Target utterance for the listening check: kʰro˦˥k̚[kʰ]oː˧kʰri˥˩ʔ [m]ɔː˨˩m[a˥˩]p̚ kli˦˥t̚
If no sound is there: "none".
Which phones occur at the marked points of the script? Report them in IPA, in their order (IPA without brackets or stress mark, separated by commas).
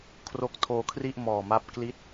tʰ, m, a˦˥